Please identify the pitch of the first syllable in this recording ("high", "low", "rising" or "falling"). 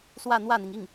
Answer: falling